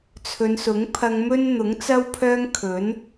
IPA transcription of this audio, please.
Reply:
t͡sʰ ɵ˨˧ n s ʊ˨˥ ŋ pʰ ɐ˧ ŋ m ɵ˥ n n̪ ʊ˨˥ ŋ t͡s ɐ˥ w pʰ œː˥ ŋ kʰ ɵ˨˥ n

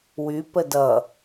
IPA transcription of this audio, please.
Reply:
w y p ə d ʌ

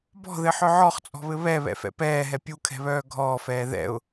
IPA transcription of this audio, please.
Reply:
b ɔ̤ ð ɘ ħ œ ʕ ɔ χ t͡sʼ ɔ̤ β ɘ β ɛ β ɛ̰ f ɛ̰ p ɛː ɦ ɛ pʲ u kʰ ɛ̤ β œː ɡʱ ɔː f ɛː ð ɛ̰ ʊ̯

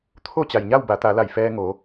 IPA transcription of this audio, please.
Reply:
t̪ʰ o˥˨ t͡ɕ a˩ j ɲ a˥˨ w b a˩˧ t̪ a˩˧ l a˧˩ j f ɛː˧ ŋ o˩˧

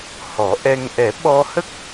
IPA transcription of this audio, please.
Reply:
h ɔ˨˩˦ ʔ ɛ˧ ŋ ʔ ɛ˨˩˦ ɓ ɔ˧ h ə˦˥ k̚

